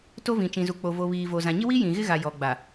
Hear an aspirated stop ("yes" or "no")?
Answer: no